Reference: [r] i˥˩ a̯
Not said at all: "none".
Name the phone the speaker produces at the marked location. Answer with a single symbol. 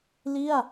l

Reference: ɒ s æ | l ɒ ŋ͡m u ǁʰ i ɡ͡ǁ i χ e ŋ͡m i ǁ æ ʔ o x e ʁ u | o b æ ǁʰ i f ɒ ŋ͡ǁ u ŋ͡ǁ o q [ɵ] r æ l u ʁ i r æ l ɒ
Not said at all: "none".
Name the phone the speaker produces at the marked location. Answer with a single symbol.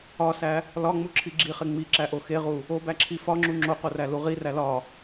o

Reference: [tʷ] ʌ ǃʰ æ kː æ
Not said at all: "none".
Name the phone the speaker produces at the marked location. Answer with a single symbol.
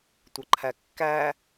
tʷ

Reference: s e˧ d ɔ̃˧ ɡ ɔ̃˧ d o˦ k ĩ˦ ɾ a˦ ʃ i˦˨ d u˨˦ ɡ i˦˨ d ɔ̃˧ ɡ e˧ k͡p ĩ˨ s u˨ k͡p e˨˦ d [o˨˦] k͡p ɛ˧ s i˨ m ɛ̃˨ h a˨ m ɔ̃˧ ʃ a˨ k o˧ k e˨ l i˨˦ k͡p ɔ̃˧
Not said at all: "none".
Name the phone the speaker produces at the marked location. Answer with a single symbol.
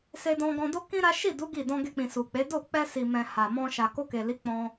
o˦˨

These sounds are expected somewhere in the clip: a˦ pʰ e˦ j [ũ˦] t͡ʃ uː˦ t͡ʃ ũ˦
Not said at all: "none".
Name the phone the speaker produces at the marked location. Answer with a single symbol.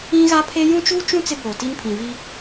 ũ˦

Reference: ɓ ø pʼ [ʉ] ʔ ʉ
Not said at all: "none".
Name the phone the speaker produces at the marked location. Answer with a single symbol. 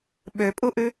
u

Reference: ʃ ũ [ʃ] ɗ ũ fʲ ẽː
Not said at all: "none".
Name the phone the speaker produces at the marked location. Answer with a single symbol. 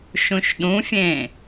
ʃ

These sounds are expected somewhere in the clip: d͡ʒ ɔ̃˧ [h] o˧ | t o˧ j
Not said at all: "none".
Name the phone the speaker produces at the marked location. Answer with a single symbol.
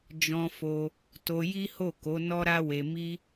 f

